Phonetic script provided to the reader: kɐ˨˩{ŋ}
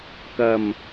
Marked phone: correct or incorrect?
incorrect